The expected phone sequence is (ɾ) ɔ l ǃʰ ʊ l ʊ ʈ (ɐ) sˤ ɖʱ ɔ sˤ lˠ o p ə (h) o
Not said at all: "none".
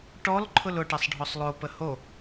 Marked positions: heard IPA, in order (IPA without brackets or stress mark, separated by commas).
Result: ʈ, ɐ, h